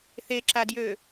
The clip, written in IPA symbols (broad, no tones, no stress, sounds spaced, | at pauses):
θ e ǁ a d j ø